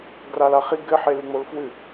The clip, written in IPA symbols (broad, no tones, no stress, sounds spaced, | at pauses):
ɡ r a l a χ i ɡ ɘ ħ e l ɨ ŋ͡m o l f w ɨ